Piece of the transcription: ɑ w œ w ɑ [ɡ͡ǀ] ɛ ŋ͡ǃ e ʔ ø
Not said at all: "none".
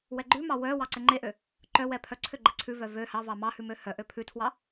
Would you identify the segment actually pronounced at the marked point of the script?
ǀ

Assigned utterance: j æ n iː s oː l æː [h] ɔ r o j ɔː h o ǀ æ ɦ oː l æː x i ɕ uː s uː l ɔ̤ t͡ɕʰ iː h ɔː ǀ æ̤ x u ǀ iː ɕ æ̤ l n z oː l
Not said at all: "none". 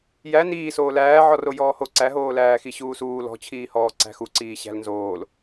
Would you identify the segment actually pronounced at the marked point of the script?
ʕ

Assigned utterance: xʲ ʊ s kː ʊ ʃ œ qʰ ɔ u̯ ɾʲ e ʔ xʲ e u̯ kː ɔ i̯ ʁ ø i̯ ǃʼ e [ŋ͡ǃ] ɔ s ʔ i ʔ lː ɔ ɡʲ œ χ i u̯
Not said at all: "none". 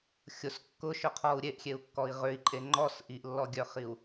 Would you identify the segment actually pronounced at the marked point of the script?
ŋ͡ǃ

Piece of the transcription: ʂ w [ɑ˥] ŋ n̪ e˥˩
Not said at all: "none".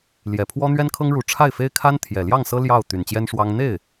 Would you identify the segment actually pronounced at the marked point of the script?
ɑ˥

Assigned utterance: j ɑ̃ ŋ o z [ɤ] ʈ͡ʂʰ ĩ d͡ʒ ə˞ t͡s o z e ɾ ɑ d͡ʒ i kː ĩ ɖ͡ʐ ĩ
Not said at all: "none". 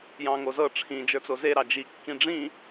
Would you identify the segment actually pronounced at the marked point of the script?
ɤ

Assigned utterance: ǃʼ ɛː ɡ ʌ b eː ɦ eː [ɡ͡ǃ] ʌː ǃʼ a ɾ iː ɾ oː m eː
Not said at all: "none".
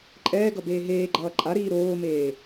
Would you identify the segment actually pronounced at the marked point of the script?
ɡ͡ǃ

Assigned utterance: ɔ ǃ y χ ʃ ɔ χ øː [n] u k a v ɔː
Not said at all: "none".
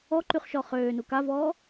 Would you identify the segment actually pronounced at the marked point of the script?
n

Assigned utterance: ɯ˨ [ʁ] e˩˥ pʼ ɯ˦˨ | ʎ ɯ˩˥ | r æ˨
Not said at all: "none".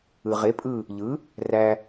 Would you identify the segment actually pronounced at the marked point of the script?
ʁ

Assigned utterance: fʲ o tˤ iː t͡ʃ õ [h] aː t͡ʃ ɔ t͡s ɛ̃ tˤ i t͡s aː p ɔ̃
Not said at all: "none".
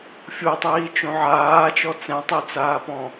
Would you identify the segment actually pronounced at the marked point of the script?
ʕ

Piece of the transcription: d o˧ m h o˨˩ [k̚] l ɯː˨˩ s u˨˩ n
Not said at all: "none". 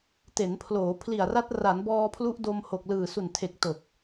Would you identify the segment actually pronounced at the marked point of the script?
k̚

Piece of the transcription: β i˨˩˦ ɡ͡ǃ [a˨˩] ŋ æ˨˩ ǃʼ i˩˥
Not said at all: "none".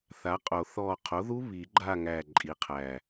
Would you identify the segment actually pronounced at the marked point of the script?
a˦˨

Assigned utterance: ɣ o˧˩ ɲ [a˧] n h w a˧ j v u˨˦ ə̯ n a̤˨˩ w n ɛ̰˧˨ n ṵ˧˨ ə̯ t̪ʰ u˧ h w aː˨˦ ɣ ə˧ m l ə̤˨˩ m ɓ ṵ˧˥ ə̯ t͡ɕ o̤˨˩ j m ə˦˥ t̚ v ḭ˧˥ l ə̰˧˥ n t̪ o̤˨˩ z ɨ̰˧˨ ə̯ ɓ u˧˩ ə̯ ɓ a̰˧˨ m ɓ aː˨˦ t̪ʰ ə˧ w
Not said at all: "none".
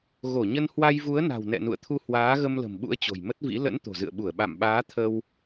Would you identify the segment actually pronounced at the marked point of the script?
ə˧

